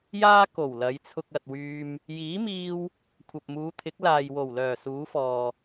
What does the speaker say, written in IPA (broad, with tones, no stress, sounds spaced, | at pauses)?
j aː˥ k o˨˩ w l ɐ˨˧ j t͡sʰ ʊ˧ k̚ ɐ˨ t̚ w yː˧ m | j iː˨˥ m iː˧ w | kʷʰ ɐ˨ p̚ m uː˨˧ t̪ʰ ɪ˨˥ k̚ l aː˨ j w o˨˩ w l œː˨˩ s uː˨˧ f ɔː˨